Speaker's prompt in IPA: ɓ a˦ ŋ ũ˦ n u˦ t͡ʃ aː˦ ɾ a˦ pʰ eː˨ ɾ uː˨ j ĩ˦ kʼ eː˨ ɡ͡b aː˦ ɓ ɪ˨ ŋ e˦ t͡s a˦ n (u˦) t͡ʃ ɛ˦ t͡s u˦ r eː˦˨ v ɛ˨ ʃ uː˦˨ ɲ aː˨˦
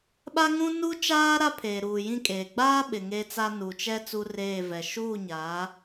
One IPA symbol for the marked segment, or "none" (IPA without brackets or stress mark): u˨